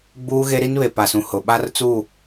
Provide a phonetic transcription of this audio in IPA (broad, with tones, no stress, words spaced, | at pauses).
ɡ͡buː˦ɣe˦ɾi˦nβe˨ pa˨sũ˨ hʊ˨ɓa˦r t͡su˦˨